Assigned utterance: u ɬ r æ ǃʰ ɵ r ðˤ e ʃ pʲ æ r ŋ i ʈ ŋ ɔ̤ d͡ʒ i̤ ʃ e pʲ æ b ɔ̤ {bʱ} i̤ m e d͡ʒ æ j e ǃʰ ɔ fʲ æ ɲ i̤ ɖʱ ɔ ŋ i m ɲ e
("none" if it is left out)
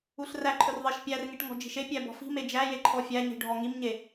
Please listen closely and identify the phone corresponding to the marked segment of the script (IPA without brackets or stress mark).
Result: f